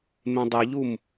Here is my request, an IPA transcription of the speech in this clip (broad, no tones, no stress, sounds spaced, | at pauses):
m ẽ dˤ i ʎ u m